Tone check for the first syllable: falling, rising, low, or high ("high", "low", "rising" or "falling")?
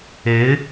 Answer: rising